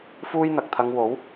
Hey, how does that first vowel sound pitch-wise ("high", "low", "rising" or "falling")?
high